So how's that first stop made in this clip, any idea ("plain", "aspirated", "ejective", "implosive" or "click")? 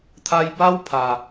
aspirated